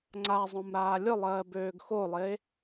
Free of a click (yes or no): no